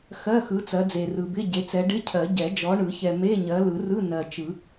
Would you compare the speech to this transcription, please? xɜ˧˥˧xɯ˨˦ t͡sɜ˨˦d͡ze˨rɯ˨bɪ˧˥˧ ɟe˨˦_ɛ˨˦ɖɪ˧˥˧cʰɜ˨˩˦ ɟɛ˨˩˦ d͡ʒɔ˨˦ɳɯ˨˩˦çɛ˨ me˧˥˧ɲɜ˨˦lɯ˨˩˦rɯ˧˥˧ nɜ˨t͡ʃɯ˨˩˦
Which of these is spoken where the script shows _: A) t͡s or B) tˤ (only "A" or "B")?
A